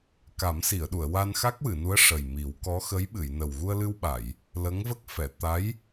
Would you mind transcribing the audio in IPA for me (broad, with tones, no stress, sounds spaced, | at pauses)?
k a˨˩˦ m s i˨˩˨ ə̯ ɗ u˨˩˨ ə̯ w a˧ n x a˦˥ k̚ w ɨ˨˩˨ n u˧˥ ə̯ ʂ ə˨˩ j m i˨˩˦ w k ɔ˧˥ x ə˧˥ j ɓ ɨ˨˩˨ j n ə˨˩ w ɣ u˧ ə̯ l ɨ˧ w ɓ a˨˩˨ j | l ə˧˥ ŋ v ə˦˥ k̚ f ɛ˨˩˨ t̪ a˧˥ j